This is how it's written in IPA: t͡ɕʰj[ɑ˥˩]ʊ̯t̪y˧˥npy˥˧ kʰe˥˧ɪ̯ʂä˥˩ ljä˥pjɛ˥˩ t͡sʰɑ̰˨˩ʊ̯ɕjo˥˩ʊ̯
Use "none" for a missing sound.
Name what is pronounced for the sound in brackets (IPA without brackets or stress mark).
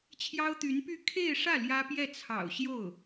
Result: ɑ˥